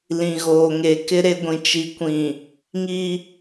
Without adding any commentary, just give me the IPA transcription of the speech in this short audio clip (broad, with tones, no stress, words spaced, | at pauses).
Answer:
lĩ˨ɣoː˨ŋe˨kɪ˦ ɾe˦ɡʷĩ˨ t͡ʃi˨kʷĩ˨ | ŋi˦